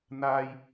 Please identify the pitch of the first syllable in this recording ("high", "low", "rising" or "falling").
high